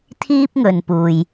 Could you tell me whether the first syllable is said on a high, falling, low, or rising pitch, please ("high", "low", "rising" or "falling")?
high